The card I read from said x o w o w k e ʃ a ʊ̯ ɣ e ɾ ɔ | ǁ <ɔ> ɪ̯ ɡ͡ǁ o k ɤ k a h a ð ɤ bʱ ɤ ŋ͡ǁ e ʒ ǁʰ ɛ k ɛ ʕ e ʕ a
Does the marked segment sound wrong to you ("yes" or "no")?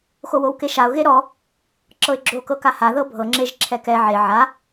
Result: yes